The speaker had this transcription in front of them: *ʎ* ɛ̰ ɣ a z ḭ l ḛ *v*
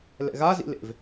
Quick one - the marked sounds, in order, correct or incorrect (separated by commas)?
incorrect, correct